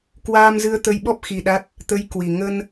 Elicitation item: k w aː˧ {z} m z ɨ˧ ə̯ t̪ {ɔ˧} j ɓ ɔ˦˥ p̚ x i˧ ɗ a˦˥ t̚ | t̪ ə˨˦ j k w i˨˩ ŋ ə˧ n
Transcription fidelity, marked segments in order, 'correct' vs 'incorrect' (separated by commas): incorrect, incorrect